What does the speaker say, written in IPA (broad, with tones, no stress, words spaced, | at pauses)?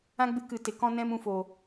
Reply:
ã˦ɡ͡bɨ˧kɨ˨ te˨k ɔ̃˧nɛ̃˧mũ˨ fo˨